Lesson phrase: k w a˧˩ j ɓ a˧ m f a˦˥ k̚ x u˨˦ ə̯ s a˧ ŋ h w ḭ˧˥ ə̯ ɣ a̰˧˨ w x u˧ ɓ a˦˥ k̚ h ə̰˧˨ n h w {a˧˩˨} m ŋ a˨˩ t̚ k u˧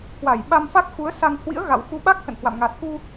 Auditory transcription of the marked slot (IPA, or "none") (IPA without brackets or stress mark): a̰˧˨